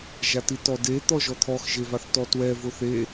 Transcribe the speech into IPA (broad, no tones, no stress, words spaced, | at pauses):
ʒatitɔde t̪ɔʒɔt̪ʰɔx ʒevaθtɔtwɛ vʊθe